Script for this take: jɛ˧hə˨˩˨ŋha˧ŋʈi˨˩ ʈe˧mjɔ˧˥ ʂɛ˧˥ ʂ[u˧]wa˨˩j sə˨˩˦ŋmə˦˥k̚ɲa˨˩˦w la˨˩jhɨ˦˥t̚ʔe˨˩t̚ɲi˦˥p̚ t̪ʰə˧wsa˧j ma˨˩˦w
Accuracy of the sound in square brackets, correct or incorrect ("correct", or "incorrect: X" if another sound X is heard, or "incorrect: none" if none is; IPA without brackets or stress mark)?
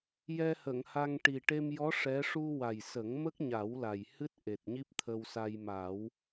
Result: correct